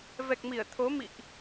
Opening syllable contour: low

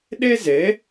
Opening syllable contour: high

